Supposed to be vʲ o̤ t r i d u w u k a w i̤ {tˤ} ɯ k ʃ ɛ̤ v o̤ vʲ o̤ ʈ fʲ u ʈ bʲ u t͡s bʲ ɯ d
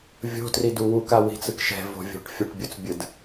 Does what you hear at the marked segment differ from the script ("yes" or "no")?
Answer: yes